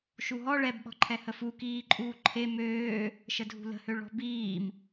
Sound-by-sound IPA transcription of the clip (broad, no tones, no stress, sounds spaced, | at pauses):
ʃ u ɦ ɔ ɭ ɛ b ɓ ɔ̤ ǃʰ ɛ h ə f u k iː ǃʼ uː ǃʰ e m øː | ʃ ə dʱ ṳ l ə̤ h ø ɭ ɔ̤ b iː m